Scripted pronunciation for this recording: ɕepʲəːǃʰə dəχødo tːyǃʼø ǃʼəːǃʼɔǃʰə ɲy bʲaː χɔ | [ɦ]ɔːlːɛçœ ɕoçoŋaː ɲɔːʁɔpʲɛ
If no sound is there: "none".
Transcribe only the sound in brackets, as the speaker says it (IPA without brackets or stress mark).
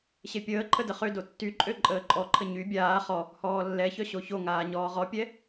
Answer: h